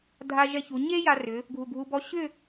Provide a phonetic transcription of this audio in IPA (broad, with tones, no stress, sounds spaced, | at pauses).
dʱ a˧ ʒ ɛ˧ ç u˩˧ ɲ e˥ j a˧ r ʏ˩˧ | ɡʱ u˧˩ ɡʱ u˧ b ɔ˥˧ ɕ ʏ˥˧